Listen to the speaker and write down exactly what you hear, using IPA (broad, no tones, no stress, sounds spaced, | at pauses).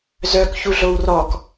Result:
z œ k ç u ɮ o w r ɔ k